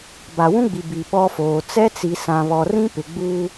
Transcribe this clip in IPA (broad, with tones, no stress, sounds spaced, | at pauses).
b a˨ w ũ˦ ɡ͡b i˨ b i˨ ɓ ɔ˦ f oː˨ t͡s ɛ˦ t͡s i˨ s ã˨ β ɔ˨ r ĩ˦ p ɪ˨ ɡ͡b u˦